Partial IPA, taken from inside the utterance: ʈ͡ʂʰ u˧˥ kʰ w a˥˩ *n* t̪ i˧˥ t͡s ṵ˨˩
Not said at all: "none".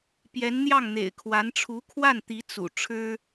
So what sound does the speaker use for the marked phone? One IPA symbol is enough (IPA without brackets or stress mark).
n